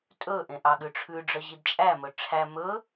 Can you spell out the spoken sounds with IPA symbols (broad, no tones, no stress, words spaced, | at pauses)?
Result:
tʼɵʔẽ ʔɑɠʉʈ͡ʂʰʉɖ͡ʐœ ʑidt͡ʃʼæmɵ ʈ͡ʂʰæ mɵ